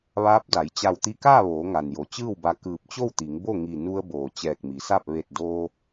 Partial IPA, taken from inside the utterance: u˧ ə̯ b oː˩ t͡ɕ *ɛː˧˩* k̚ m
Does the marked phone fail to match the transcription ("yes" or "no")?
no